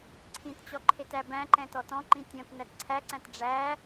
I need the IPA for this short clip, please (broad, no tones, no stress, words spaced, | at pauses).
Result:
ǀʰĩtt͡ɕɔ ǃʰetæbæ̃ǃɛ̃ tɔtɔ̃ǃĩ tʲɔ̃t nætǀʰæǀæ̃t ɖ͡ʐæ